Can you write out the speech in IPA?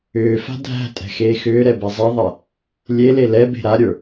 ʏːfa̤ dʱæ̤tʼɛ̤ xeːxʏːɾɛ bɛzˤɛðˤɛ | lʲele lɛbe̤ ɾaɾʲə˞

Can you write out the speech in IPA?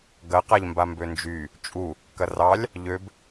ɡɐqaʎmba mbønd͡ʒy | t͡ʃʼu | kɐrɑlʲ | ʎøb

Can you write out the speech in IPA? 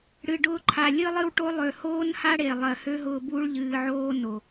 ɽɨ˨ɖʊː˧ǃʰa˨ lʲɨ˧lˠɨ˧wʈo˧lˠø˨ hoː˦nha˦ɽe˨ lˠɜ˨hø˦ɦʊː˧ bu˦ɭʎɨː˧ʕoː˦ no˨

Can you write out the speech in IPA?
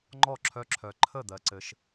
ŋ͡ǃɔ˥˩ǁʰœ˧˥ǁʰœ˨ ǃʰə˥˩d̪ɜ˨ǀɘ˨ʃ

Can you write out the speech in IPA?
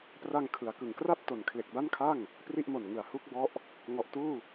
pra˧ŋkʰɯ˩˦a̯kɯ˩˦ŋkra˥˩p̚ to˨˩nkʰle˨˩k̚ba˥˩nkʰa˥˩ŋ | pri˥˩ʔmo˨˩n ŋɯ˨˩a̯hu˥˩k̚bɔ˦˥ʔ | ŋɔ˨˩ʔtuː˥˩

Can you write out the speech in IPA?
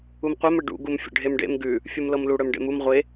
umqʷœm əɖṵ ɡumfʲə̰ɖʱemɖḛm ɡʉ | fʲumlɤmlu ɽœmɖḛmum ʁʷe

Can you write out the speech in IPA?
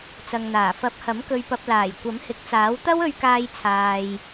t͡sɐ˨ŋn̪aː˨˩ fɐ˨˥p̚hɐ˨˥m kɵ˨ɥpɐ˨p̚laː˨˩j kʷɐ˨˥mhɪ˨˥k̚t͡saː˨˥wt̪ɐ˥w ɵ˨ɥkaː˨j t͡sʰaː˨j

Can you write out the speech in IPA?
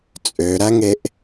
t͡sʼøɾæŋeʔ

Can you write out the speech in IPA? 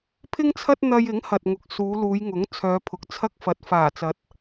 pʰɪ˥ŋt͡sʰɐ˥t̚n̪ɐ˧j ɪ˨˥ŋhɐ˨t̚ŋʊ˨k̚ suː˨˧luː˨˧jŋʊ˨˥ŋ t͡sʰœː˨˧pʰʊ˨k̚ t͡sʰɐ˥k̚fɐ˨˥t̚ faː˨˩t͡sɐ˨˥t̚

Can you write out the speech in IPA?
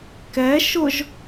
kɛ ʃʊʒ

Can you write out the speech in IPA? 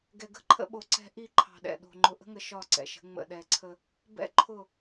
ɡɛ˨ɡə̤˦ǃʰə̰˦ɓo˨ ǀɛ̤˦ ʔi˦˨ǃʰɑ̤˨ɗɛ̰˨ɗo̤˨ ŋ͡ǃʊ˨ʔə̤˦ŋə˨ ʃɒ˦˨ǀɛ̰˨ʃə̤˨˦ ŋ͡mə̰˨ɗɛ˨ǀʰə˦ | bɛ̰˦ ǃʰʊ˦˨

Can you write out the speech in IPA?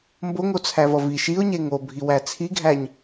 mboŋot͡sʰævʌ viʃ iʊ̯ɲe ŋobʱiwæ t͡sʰiɡʱæɲ

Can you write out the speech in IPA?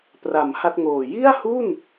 pra˩˦m ha˥˩t̚ŋoː˨˩ ji˥˩a̯hu˥˩n

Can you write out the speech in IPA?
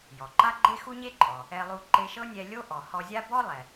jɔ˩ǃa˥ɡ͡ǃe˥ xu˥ɲe˥ǃʼɔ˩ | ɛ˧lˠu˧ ǃe˧ʃɤ˥nʲɛ˧ lʲo˥ ʔɔ˩ hɔ˧zʲa˥ bɔ˥lˠɛ˩

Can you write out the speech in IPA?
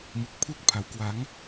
mu˨˩k̚pʰu˥˩k̚pʰa˩˦w kwa˩˦ŋ

